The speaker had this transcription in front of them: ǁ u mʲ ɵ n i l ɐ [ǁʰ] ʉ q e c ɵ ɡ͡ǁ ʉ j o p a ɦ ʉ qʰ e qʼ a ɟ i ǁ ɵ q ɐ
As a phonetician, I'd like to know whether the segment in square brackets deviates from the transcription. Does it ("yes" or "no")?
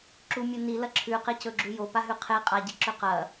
no